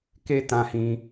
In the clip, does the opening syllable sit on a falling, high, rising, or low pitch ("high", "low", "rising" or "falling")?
high